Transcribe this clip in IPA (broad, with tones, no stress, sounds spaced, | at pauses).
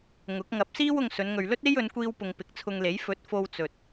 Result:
ŋ ʊ˨˥ k̚ ŋ ɐ˨˥ p̚ s iː˥ w ʊ˧ ŋ s ɵ˨˧ n ŋ ɵ˨ ɥ l ɵ˥ t̚ e˥ j ɵ˨˧ n kʷ iː˧ w p ʊ˨ ŋ p ɪ˨˥ k̚ t͡sʰ ʊ˧ ŋ l e˨˥ j f ɵ˨˥ t̚ f o˧ w t͡s ɵ˨ t̚